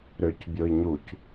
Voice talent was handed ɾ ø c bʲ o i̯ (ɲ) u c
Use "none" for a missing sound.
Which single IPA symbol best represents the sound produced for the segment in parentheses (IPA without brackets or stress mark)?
ɲ